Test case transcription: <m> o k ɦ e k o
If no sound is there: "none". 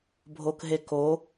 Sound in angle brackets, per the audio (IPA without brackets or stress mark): bʱ